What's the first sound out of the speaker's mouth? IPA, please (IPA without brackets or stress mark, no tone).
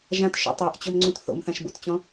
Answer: ʒ